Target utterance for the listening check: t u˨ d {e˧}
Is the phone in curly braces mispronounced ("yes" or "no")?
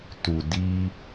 yes